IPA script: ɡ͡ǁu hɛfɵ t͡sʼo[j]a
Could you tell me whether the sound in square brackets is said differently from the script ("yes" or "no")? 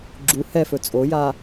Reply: no